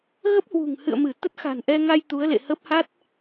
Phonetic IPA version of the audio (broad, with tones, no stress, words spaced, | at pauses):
ɣə˦˥p̚hwṳ˨˩ŋ hɨ̰˧˨ə̯mɨ˧˩ t̪ə˦˥t̚xa̤˨˩nʔɛ˧ŋa˧j t̪u˨˦ə̯lḛ˧˨hə˦˥p̚ ha˦˥t̚